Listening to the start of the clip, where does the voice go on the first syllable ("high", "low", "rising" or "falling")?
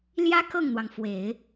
high